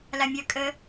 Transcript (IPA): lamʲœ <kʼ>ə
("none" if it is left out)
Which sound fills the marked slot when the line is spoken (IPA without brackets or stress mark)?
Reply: kʼ